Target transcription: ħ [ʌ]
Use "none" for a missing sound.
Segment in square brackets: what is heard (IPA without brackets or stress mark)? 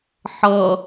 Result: ʌ